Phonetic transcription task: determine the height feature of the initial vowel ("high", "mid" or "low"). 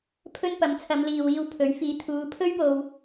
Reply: mid